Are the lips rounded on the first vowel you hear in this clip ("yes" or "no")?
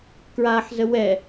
no